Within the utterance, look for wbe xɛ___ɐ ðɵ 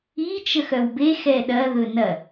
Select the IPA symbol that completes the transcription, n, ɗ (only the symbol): ɗ